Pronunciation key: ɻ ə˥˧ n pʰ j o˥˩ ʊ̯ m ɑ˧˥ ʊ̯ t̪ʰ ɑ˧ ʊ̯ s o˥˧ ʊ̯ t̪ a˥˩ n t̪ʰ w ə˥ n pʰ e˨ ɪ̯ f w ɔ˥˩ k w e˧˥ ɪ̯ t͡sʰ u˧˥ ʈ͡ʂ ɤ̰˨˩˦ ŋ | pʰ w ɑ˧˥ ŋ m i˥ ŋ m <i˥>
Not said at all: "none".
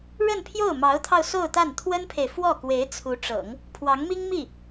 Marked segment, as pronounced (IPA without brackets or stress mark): i˥˩